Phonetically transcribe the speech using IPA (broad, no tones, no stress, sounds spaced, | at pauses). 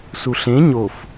s u ɬ ẽ ɲ o f